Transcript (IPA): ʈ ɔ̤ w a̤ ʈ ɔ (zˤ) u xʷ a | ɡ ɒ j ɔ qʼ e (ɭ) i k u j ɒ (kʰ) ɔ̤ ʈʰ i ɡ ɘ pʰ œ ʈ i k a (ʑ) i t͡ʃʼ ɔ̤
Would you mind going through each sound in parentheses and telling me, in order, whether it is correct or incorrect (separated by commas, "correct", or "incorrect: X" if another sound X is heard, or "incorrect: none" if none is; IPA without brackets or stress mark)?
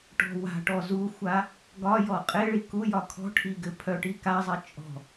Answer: incorrect: z, correct, correct, incorrect: zˤ